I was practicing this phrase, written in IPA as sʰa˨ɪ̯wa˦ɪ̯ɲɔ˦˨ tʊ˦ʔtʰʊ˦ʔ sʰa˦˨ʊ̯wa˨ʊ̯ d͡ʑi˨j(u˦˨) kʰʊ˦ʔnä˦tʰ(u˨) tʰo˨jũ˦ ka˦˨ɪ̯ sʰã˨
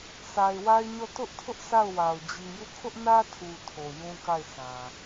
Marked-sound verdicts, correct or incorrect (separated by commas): correct, correct